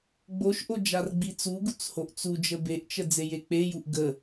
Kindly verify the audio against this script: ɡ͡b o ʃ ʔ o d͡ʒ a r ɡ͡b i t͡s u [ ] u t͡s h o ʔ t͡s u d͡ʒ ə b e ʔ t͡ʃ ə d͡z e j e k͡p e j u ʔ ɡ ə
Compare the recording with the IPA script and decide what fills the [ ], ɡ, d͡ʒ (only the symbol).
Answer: ɡ